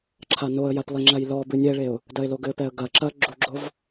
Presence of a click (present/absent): present